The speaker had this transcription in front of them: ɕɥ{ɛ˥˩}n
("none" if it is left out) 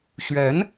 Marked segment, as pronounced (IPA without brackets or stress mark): ɛ˧˥